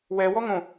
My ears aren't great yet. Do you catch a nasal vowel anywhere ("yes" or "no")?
yes